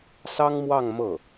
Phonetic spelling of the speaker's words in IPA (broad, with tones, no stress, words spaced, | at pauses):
sɑ˥ŋmwɑ˥˧ŋ mɤ˥˩